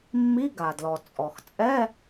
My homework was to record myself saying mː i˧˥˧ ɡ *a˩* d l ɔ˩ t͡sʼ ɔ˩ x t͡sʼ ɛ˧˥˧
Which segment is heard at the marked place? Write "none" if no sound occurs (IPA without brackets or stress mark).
a˩